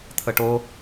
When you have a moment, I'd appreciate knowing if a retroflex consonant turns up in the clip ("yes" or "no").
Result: yes